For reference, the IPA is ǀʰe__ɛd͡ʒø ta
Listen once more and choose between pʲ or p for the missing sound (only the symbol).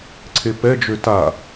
p